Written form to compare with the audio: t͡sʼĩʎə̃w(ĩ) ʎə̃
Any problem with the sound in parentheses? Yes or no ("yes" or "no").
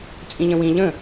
no